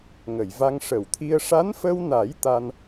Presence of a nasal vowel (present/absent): absent